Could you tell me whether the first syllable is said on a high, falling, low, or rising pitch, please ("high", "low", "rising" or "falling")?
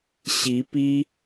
rising